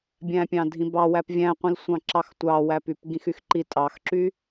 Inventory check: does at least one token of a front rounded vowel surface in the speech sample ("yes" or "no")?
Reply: yes